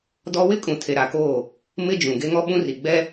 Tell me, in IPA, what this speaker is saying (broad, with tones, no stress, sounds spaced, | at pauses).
d ɔ˦ w ɪ˦ kʼ ũ˨ tʰ e˨ ɾ a˨ k oː˦˨ | m ɪ˦ d͡ʒ ũ˨ ɡ e˦ ŋ ɔ˦ ɓ ũ˦ r i˨ ɡ͡b ɛ˦